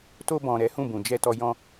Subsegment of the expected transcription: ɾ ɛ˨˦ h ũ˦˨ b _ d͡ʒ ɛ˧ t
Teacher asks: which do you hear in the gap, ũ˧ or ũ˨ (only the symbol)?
ũ˨